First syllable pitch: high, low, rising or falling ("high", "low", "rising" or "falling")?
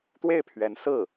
falling